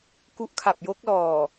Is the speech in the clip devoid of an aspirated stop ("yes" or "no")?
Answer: no